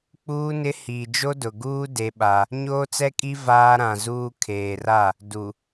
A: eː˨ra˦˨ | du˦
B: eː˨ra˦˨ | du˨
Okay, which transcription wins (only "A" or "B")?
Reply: B